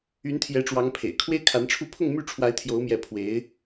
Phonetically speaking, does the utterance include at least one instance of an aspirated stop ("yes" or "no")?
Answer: yes